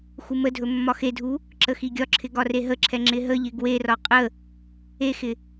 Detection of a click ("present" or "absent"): present